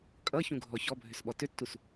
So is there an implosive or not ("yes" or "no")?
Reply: yes